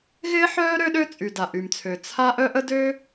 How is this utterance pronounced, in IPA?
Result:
ɣɪː˥ħœː˥ ɾø˥ɗø˥ t͡sʼy˩da˩ʔy˩mt͡sʰø˩ t͡sʰa˥ ʔœ˥ʔə˥ dø˥

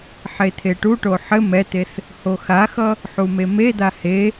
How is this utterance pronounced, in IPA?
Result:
ħet̪ʰeʈuʈo ħɘ mɛt̪eθ | hoxaxʌ | ħumemed̪a he

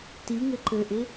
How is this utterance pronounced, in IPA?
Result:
tiŋɘ ǃɘʔɪ

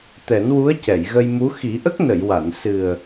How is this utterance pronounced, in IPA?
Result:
t̪ɛ˨˩˦nwu˧˥ə̯ cɛ˨˩˨jɣə˧jmu˧˥ xi˨˩˦ʔə˦˥k̚ nə˨˩˨jwa˨˩˨n sɨ˨˩ə̯

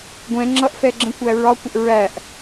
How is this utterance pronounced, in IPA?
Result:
ɡʷɛ̃ ŋ͡ǁʌʔfɛɡ͡ǁə̃kʷæ ɹɒkʷəʔ ɹæʔ

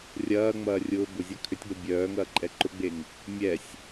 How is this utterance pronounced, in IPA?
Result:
rʲɐːŋ͡mɐːrʲʊː bʊzʲɐ kʰʏtʲɡ͡bɐ bʲœːŋɐːǃʼɛ ǃʊɡ͡beŋ | mʲɛsʲ

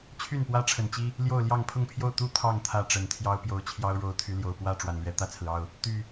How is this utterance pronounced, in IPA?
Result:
t͡ɕʰy˥˨npwä˦ ʈ͡ʂʰə˨˩nt͡ɕi˦ | ljo˥˨ʊ̯ljɑ˥˨ŋ pʰʊ˥˨ŋpʰjo˥˨ʊ̯ t̪u˥˨ t̪ʰɑ˥˨ŋ t̪ʰä˥˨ʈ͡ʂə˨˩n t̪ʰjɑ˦ʊ̯pjo˨˦ʊ̯ t͡ɕʰjɑ˦ʊ̯ ɻo˨˦ʊ̯t̪ʰy˨˦ljo˨˩ʊ̯ pwä˥˨ ʈ͡ʂwa˨˩nlɥɛ˨˦ t̪ä˥˨t͡sʰɹ̩˩ɑ˥˨ʊ̯ | t̪y˨˩

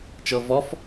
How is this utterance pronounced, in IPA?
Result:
t͡ʃɤvɔf

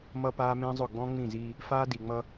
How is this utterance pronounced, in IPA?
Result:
mʌ˦paː˦mẽ˦zˤʊ˦˨ ɡ͡bɔ̃˦ŋ͡mĩ˦˨ziː˦ | faː˦di˨ŋ͡mʌ˦

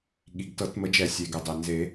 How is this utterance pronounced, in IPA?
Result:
ɠi˩ɡtɤ˨˩˦t mə˨˩˦d͡ʒɛ˨˩˦sʲe˩ɡɛ˩ dˤe˩nze˨˩˦

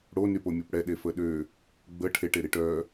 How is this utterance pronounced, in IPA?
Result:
ɽonypomʲop ɽɛɗefə ɗø | ɡ͡bə ʈʰeʈeɾiʈ œ

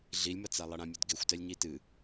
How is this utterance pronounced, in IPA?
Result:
ɮilʲmɐt͡sa lˠɐɽãmʲudɡexʷ tɛlʲɲitɨ

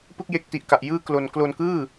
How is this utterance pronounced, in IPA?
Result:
pɯ˥˩k̚je˦˥k̚ti˨˩ʔka˨˩ʔ jɯː˥˩klo˧n klo˧nkɯː˥˩

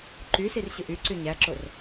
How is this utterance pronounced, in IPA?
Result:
ǃysir ɕɯʔyǀy ɲæǁor

